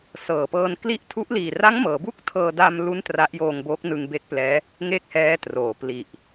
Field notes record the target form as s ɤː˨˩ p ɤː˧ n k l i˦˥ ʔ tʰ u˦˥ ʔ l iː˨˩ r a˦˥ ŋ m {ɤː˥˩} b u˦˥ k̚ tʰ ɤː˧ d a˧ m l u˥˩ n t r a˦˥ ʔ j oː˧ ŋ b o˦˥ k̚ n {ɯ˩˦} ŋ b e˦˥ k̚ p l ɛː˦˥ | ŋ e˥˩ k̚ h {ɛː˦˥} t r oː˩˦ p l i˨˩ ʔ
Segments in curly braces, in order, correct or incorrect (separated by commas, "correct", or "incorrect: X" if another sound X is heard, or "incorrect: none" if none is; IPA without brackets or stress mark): incorrect: ɤː˩˦, incorrect: ɯ˧, correct